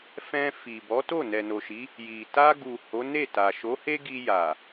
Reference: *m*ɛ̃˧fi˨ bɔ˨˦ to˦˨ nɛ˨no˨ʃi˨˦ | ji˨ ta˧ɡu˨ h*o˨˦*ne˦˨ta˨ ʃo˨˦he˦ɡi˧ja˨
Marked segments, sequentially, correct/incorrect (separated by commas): incorrect, correct